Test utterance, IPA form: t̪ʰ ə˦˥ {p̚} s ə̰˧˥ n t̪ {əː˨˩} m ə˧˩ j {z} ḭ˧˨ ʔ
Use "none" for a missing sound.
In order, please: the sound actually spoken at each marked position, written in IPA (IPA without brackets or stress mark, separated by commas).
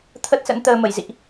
t̚, əː˧, z